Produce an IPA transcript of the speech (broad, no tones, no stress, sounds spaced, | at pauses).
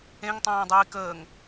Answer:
ẽ ŋ tˤ æ̃ː dˤ iː k əː ŋ